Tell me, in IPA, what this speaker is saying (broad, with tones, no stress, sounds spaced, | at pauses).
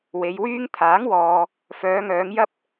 w e˨˧ j w yː˥ ŋ t̪ʰ aː˨˥ ŋ w ɔː˨ | f œː˨˧ ŋ œː˨˧ ŋ j ɐ˥ p̚